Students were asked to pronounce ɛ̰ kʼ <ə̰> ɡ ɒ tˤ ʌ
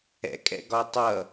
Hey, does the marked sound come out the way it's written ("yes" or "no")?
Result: no